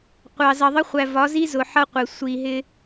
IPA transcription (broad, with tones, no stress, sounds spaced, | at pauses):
qʷ ɑ˨ z ʌ˨ ðˤ ə˦ χʷ æ˨ v ɒ˨˦ z i˦ z ʊ˨ ħ ʌ˦ qʷ ɪ˨ sʷ i˨ ɦ ɪ˦